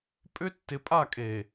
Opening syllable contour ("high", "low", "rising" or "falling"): high